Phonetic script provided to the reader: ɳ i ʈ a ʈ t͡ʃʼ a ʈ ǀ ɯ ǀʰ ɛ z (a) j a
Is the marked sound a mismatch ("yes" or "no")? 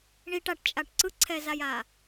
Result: no